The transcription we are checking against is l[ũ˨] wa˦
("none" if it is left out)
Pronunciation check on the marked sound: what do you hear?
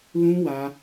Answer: ũ˦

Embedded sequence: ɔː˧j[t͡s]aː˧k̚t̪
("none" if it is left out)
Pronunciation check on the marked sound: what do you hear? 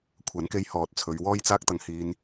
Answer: t͡s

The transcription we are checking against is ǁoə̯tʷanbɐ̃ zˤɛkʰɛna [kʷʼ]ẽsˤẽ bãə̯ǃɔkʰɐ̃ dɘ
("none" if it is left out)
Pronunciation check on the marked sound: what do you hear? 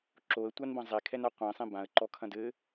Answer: qʷ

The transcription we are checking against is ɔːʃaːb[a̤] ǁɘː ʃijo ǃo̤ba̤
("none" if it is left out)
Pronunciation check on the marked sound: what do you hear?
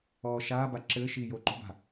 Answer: a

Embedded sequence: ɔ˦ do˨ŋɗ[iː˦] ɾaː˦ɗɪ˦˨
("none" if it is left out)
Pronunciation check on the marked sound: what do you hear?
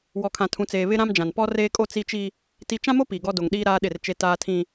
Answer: iː˦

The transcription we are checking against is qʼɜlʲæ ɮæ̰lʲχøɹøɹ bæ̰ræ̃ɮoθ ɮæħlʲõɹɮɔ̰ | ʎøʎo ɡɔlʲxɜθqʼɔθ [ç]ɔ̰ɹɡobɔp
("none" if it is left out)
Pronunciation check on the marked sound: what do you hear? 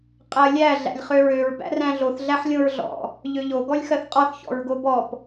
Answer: ç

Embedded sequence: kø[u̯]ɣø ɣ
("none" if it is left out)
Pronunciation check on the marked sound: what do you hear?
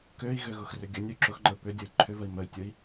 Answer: i̯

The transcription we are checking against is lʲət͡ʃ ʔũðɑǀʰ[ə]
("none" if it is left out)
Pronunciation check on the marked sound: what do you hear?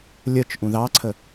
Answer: ə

